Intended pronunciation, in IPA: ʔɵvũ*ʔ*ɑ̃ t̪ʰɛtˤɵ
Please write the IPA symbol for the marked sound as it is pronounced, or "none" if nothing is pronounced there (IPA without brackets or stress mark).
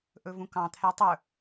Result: k